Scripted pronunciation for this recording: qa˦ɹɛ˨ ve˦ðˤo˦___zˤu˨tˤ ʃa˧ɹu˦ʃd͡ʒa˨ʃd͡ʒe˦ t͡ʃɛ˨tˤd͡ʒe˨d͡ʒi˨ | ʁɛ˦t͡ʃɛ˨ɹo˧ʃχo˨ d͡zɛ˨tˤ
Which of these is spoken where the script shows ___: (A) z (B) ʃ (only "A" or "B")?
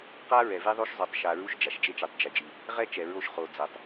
B